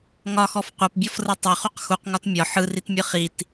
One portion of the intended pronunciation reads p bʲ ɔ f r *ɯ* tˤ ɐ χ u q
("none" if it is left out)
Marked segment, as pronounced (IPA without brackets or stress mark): ɯ